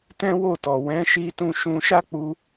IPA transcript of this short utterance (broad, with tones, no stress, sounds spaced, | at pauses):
t ɛ̃˦ w o˦˨ t ɔ˨ w ɛ̃˨˦ ʃ i˧ t ũ˦ ʃ ũ˧ ʃ a˦ k͡p u˧